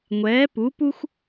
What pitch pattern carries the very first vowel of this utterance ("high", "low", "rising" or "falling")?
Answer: rising